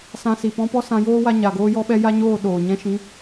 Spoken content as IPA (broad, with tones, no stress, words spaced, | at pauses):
sã˧si˨pɔ̃˦ pɔ˦sã˧ joː˦wa˧ɲa˨ɡoː˧ jɔ˧ɓɛ˧ ja˦ɲoː˦˨ ɗoː˨ ɲɛ̃˧ʃĩ˨˦